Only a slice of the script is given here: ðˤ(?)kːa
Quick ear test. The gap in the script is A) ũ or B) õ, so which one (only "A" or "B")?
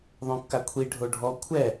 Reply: B